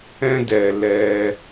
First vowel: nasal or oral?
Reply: nasal